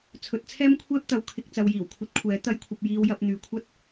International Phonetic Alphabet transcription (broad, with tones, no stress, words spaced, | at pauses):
t͡sʰɵ˨˥t̚t͡sʰɛː˥mkʷʰɛː˥p̚t̪ɐ˨˧w kʰɪ˨k̚ t͡sɐ˨wjiː˨˩wkʷʰɐ˧t̚kʷʰɛː˨˥ t̪ɐ˨˧jkʷʰɐ˨p̚ jiː˧wjɐ˧p̚ n̪yː˨kʷʰɐ˥t̚